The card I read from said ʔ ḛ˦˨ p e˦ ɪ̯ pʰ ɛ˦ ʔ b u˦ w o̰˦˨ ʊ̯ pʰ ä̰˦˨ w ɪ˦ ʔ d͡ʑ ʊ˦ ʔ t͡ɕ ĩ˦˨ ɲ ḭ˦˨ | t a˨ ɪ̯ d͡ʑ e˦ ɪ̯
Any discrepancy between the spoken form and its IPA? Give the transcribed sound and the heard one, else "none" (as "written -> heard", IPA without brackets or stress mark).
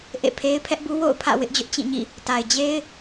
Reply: p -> pʰ